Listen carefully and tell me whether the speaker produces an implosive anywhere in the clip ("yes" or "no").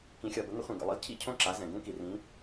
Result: no